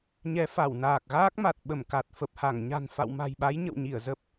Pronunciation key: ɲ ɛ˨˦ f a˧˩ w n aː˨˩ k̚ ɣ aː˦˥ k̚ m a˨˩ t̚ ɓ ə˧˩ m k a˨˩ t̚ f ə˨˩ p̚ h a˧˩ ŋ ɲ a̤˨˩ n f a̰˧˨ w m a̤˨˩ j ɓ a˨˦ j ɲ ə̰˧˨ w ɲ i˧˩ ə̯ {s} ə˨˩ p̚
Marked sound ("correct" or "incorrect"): incorrect